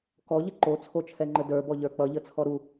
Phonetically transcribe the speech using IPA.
kɔʎə ǃot͡sʰot͡ʃʰɛŋ͡ǃə də˞bɔʎə˞ k͡pʌʎət͡sʰɔ ɾu

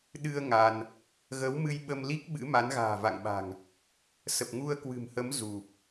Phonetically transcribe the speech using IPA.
ɗɨ˧ə̯ ŋa˧n | ɣə˨˦wmɨ˧jɓə˧mli˦˥k̚ ɓɨ̰˧˥ ma˨˦nɣa̤ː˨˩ va̰˧˨ŋɓa̤˨˩ŋ | sə˨˩p̚ŋu˧ə̯kwɨ̤˨˩mhə˨˦m zu˨˩p̚

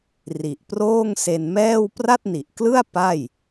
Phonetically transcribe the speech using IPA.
ri˨˩ʔproː˥˩ŋse˧nmɛː˥˩w pra˥˩t̚ni˨˩ʔklɯ˥˩a̯ pa˥˩j

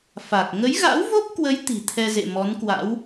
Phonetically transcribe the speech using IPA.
fa˨˩k̚ ŋə˨˦jɣa̰˧˥wvo˦˥p̚kwə˨˦j t̪i̤˨˩t̪ʰɛ˧zḛ˧˨ mɔ˨˦nkwa̰˧˥w

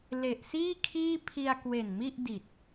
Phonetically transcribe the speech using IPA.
le˨˩ʔsiː˥˩kʰiː˥˩ pʰi˧a̯kwe˨˩nmi˥˩ʔdi˨˩t̚

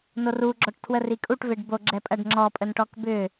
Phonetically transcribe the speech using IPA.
noru ɡ͡ǁɔʈtʰwərikʼuʈ veɖbo ɡ͡ǁɛpʼɐɖŋ͡ǁɔ pʼənʈɔkbʏ

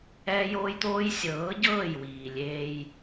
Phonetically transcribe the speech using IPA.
ɛː˦joː˦jt̪oː˦j sʲɤː˨˦ɟɤː˦˨jwiː˨ lʲeː˦j

